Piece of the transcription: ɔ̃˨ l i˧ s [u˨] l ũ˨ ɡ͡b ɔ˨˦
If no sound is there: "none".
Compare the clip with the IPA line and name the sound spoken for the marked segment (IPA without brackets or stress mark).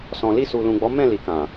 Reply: u˨